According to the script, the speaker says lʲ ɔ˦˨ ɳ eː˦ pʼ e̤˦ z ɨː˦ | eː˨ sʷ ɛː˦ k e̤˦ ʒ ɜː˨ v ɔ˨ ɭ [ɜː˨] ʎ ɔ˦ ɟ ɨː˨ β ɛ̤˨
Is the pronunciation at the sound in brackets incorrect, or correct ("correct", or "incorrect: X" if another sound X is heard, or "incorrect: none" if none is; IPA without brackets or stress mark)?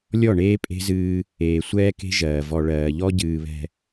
correct